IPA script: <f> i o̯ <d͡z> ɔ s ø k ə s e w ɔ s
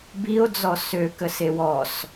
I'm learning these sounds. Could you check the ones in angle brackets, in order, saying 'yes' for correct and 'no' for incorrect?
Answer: no, yes

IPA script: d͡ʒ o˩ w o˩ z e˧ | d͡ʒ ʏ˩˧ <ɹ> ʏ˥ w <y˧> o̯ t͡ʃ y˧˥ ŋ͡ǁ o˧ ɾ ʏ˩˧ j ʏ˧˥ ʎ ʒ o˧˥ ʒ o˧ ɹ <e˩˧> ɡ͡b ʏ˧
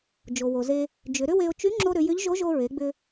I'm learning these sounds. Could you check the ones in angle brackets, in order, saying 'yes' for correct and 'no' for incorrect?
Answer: no, no, yes

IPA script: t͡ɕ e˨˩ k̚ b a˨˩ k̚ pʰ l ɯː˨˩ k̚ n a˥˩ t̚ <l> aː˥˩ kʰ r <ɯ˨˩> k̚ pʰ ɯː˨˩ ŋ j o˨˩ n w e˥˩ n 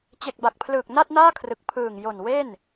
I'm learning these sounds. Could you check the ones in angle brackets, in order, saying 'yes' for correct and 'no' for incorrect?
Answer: no, yes

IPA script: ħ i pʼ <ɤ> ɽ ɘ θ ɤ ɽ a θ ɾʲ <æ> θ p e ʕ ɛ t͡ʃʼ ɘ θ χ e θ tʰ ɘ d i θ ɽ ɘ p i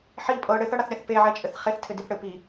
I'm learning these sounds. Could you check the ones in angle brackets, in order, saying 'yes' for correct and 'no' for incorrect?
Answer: yes, no

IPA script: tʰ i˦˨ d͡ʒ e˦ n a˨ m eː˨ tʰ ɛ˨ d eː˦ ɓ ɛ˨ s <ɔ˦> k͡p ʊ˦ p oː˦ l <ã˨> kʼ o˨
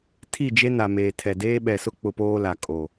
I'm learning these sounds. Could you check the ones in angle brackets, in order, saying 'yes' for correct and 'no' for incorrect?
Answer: no, no

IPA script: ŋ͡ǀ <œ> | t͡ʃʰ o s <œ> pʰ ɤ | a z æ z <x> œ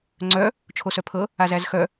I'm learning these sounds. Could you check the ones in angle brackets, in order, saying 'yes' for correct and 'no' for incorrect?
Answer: yes, yes, yes

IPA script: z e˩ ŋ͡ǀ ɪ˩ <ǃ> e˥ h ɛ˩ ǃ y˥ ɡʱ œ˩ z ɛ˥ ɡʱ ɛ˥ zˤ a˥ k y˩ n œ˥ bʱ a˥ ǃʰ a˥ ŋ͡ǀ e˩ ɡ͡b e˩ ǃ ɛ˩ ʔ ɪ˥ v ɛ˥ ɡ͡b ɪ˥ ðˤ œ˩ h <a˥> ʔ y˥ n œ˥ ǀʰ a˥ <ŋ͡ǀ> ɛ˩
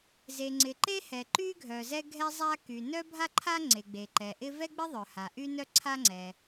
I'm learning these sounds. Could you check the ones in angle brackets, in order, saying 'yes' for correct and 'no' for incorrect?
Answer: yes, no, yes

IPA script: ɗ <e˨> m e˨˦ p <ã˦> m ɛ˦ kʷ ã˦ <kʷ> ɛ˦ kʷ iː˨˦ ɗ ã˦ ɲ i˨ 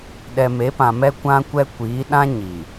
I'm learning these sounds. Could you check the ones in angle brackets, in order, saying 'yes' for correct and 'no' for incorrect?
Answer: no, no, yes

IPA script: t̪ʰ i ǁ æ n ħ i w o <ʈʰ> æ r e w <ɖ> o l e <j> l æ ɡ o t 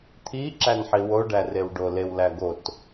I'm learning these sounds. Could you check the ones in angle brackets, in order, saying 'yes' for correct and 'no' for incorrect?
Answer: no, yes, no

